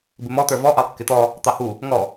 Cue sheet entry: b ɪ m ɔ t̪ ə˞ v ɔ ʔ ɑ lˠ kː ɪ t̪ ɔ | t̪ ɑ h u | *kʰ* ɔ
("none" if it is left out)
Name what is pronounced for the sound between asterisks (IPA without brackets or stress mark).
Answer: ŋ